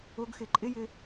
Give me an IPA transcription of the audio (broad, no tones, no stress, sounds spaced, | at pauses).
ʊ ɡ x ɪ ǃʼ ɪ j ɪ